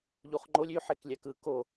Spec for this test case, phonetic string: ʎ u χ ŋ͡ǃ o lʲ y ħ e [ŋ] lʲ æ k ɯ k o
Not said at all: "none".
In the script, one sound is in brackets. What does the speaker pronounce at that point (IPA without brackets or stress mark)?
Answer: k